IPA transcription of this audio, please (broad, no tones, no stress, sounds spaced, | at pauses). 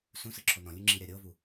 s ũ s ɯ ǁʰ o n ɔ̃ lʲ u ŋ͡ǁ i ɾʲ a ɾʲ ɤ v u